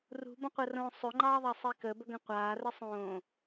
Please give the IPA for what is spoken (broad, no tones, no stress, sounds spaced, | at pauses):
r ṳ b ə̃ qʷ ə r õː sˤ ʏ ŋ͡ǃ ɑː ðˤ ɑ sˤ i k ə b ə ɡ ə̃ qʷ aː r ə sˤ õː